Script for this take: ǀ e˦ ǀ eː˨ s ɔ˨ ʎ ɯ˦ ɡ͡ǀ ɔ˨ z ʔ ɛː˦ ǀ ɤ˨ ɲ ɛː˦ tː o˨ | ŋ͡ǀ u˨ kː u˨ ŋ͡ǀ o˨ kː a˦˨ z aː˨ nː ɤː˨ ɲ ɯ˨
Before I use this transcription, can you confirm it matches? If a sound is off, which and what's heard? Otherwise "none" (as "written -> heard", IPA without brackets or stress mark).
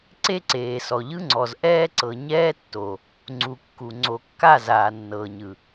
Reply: ɡ͡ǀ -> ŋ͡ǀ